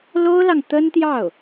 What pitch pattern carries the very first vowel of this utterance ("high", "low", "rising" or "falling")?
high